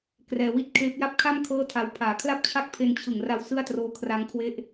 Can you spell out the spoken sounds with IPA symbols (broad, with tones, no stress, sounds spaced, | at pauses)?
k r ɛː˧ w i˥˩ t̚ kʰ eː˦˥ p̚ j a˥˩ p̚ kʰ a˥˩ m kʰ ɤː˥˩ tʰ a˧ w pʰ aː˩˦ kʰ l a˥˩ p̚ t͡ɕʰ a˥˩ k̚ pʰ e˧ n t͡ɕʰ ɯ˨˩ ŋ r a˧ w s ɯ˥˩ a̯ t r oː˦˥ kʰ r a˦˥ ŋ kʰ w e˦˥ ʔ